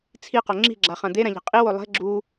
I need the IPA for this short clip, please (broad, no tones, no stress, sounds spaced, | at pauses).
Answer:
t͡sʰ i q o ŋ͡ǁ i̤ ɡ͡ǁ a χ ã d̪ e ɾ ã ʎ ɛ̤ qʼ i w o lˠ ɛ̤ ɡ͡ǁ u